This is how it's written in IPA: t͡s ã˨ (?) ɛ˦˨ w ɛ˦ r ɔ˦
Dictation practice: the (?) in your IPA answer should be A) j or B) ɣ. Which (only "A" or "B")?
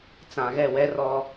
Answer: B